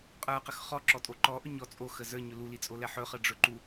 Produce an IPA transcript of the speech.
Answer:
qʼ ə˞ q ə x χ ɔ ǁ ɔ tʼ o ǃ ɔ ʔ ɵ ɲ ɔ t͡sʼ o x ə z ə˞ ɲ ɵ l u l i t͡sʼ o l ɛ ħ ɵ χ ə ɖ͡ʐ ɵ ǃ u

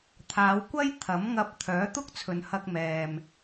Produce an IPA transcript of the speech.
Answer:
t̪ʰ aː˨˧ w kʷ ɐ˥ j t̪ʰ ɐ˨˥ m ŋ ɐ˧ p̚ t̪ʰ œː˨˥ t̪ ʊ˥ k̚ t͡sʰ ɵ˨ n h ɐ˧ k̚ m ɛː˨ m

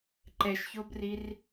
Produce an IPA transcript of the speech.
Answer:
ǃ ɛ ʃ ç o b r i r

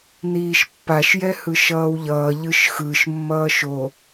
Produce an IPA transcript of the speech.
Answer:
n iː ʃ pː a ʃ j ɛ h ɯ ʃ ʌː w ʎ ʌː ʎ ɯ ʃ x ɯ ʃ mː ʌː ʃ o

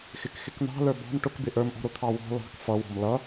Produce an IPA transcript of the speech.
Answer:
x ɪ k x ɪ k n̪ ɑ̤ l ə˞ b ɑ̤ m ʈ ʊ k b ɪ ʔ ə˞ m ʔ ɔ̤ ɾ ʊ t̪ʰ ɑ w ɔ̤ l ɑ̤ k f ʌ w ɔ̤ m l ʌ

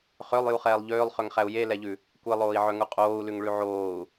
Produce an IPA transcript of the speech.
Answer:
χ ø lˠ j u χ ɛː lˠ ʎ øː lˠ χ ø ŋ χ æ u̯ j e l ɛ ʎ ʉ | kʷ e lˠ oː i̯ ʕ œ ŋ u qʼ oː u̯ l ʉ ŋ ɭ ʉ ʕ oː u̯

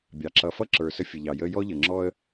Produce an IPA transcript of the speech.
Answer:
bʲ ɑ˨ ǁ ʌ˧ f ʌ˦ ǁ ə˞˨ s ə˧ fʲ ə˨ ʎ ɑ˨ j ə˦ j ɔ˦ ʎ ə˨ ŋ͡ǁ ɔ˦ ə̯

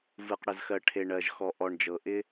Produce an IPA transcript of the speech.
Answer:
v ɯ˨ q ɽ ə˨ z x ɜ˨ ʈʰ e˨ ɳ ɜ˨ ʒ x ɔ˨ ʔ ɔ˨ ɳ d͡ʒ ɤ˨ ʔ ɪ˦

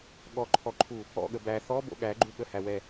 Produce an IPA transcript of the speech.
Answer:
ɠ ɔ ǃʰ ɔ ǃʰ u | ɔ̰ ɠ ə b æ θ ɔ b o̰ ɠ æ ɡ͡ǃ u ɠ ə h æ w ɛ

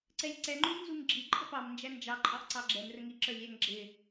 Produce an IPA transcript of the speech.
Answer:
ǀ ɛ lʲ ǀ ɛ ŋ͡ǃ u lʲ n z u ŋ ɡ͡ǁ i ǃʼ ə p ɑ m n d͡ʒ æ n d͡ʒ ɑ ǃʼ ɑ ʔ ǀ ɑ ɡ͡ǁ ɛ m r ə ŋ i ǁ ə˞ lʲ æ ŋ ɡ͡ǁ ɪ

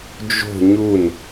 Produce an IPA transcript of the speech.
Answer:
d͡ʒ o̤ ɲ u n

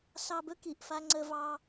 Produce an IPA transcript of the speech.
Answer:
s ɑ˧ b ɵ˦ k i˨ ʔ f a˧ ŋ͡ǀ ə˧ v ɑ˧

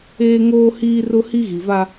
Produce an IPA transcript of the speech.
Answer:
eː˦ ŋ oː˦ h iː˦ r ʊ˦ h i˦ ɣ i˨ v a˦

